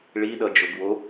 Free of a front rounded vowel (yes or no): yes